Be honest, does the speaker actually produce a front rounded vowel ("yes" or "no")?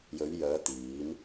yes